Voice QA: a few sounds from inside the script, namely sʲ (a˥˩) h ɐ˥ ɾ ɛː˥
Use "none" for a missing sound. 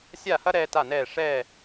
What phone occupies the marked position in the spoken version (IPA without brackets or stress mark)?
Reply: a˥˩